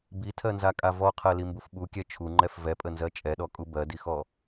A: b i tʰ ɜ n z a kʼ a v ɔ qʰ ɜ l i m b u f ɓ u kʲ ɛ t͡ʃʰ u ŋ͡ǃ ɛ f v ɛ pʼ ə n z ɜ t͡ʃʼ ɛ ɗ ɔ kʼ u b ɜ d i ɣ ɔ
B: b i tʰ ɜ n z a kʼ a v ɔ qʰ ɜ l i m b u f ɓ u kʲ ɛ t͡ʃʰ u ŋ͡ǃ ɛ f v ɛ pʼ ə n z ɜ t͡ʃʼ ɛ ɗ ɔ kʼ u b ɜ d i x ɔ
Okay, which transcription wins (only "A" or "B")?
B